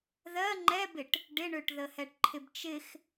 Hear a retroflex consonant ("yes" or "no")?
yes